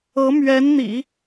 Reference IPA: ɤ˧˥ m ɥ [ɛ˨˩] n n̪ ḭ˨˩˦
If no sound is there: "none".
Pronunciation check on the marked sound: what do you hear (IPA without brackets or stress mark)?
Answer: ɛ˧˥